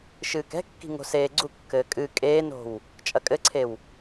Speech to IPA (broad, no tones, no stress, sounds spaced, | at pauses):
ʃ ɨː k ɛ̤ kː i̤ ŋ o̤ s eː ɡ͡ǀ u kː ɘː kʼ ɨ kʼ eː n o̤ w | t͡ʃʼ ɐ kʼ ɘ ǀʰ e w